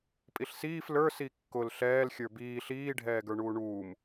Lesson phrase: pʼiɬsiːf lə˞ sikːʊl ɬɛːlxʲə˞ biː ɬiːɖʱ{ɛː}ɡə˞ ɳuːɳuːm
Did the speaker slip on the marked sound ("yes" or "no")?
no